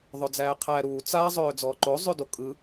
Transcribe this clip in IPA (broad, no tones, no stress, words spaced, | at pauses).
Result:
ðˤød͡zæːqʰæːɾuː t͡sa zˤøːd͡zɔːǃo zˤʉdokʼɯ